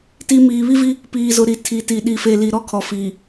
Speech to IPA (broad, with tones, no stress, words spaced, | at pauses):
ti˨ miː˨βi˦vi˦ | piː˨zʊ˨ ɾi˨tʰi˨ti˨ ɗi˨fe˨li˨ ɾɔ˦˨kʰɔ˨ fiː˨